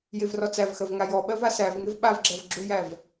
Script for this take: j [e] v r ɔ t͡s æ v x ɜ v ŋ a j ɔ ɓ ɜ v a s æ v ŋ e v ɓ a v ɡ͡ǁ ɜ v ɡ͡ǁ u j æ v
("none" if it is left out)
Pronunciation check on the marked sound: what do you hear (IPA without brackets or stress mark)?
e